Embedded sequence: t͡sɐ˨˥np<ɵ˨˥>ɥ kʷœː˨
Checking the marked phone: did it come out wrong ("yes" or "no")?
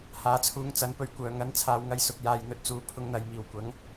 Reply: yes